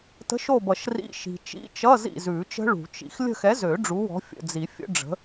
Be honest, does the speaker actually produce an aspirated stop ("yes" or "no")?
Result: no